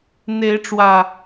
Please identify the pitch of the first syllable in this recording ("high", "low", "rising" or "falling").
rising